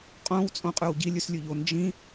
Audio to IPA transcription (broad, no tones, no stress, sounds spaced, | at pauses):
qʼ õ w t͡sʼ õ qʼ ʉ w ɟ i lʲ ʉ s lʲ ʉ ʎ o n d͡ʒ ĩ